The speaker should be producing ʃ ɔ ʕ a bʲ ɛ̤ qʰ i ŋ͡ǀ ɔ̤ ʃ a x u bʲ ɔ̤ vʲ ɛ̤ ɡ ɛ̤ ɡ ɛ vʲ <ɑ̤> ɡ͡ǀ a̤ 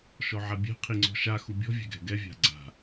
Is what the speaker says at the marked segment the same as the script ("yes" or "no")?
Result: no